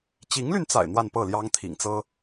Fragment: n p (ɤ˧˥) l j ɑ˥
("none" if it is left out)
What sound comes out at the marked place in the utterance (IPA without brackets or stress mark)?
ɤ˥˩